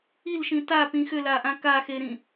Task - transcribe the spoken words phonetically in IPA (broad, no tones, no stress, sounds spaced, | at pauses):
i l ʃ ĩ t a p ĩ x ʏ l a ʔ ã k a x e ɾ ĩ